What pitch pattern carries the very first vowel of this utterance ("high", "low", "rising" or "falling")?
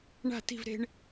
falling